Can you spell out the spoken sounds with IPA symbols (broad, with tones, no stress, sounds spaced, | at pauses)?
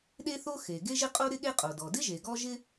ɗ e˥ θ o˥ x e˩ ɡ e˥ ʒ ɪ˥ qʼ o˥ ɾ ɪ˥ ɠ e˥ qʼ o˩ d ɔ˩ d ɪ˥ ʒ e˩ ɡ ɔ˥ ʒ ɪ˥